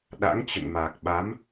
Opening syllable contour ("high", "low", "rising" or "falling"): rising